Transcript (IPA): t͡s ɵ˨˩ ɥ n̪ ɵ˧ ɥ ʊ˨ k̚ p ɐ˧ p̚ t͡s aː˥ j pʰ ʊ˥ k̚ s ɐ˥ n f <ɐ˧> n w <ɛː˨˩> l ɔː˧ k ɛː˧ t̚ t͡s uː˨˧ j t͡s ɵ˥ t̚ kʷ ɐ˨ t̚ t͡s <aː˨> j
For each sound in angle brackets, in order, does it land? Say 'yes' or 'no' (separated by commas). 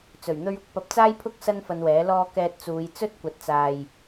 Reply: yes, no, yes